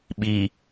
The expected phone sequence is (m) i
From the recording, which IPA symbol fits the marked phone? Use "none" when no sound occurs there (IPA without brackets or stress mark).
ɓ